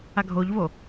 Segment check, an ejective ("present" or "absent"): absent